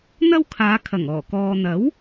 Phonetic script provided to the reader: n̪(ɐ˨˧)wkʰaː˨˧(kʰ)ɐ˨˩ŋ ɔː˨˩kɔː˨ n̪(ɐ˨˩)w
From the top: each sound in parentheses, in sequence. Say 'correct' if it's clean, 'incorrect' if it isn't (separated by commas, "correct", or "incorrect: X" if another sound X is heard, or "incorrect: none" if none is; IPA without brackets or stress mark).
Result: incorrect: ɐ˥, correct, incorrect: ɐ˨˥